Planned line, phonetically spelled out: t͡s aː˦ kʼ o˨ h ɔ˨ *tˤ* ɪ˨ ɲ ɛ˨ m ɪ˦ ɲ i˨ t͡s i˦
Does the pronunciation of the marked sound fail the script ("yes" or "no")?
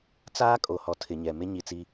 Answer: yes